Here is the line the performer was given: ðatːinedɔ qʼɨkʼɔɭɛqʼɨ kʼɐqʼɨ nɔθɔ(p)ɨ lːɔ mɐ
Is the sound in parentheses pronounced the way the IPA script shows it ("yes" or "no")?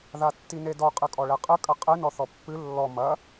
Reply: no